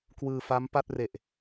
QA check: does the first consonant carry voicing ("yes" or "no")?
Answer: no